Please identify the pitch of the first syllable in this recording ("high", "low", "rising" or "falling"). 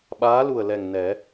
rising